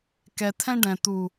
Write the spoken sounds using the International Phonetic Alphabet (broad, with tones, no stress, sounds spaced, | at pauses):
k ɛ˨ t̪ʰ ɛ̃˦ ɖ ɛ̃˨ t̪ u˨